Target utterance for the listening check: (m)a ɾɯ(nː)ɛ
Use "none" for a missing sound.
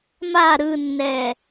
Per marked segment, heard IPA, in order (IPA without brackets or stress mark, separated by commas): m, nː